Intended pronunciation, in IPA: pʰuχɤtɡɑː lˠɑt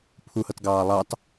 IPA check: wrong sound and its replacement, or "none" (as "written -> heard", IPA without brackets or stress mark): χ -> h